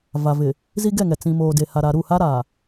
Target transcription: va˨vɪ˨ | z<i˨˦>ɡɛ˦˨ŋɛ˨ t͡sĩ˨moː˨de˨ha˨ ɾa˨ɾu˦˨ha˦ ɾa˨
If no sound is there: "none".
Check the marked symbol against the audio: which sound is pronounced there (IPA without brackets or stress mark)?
i˦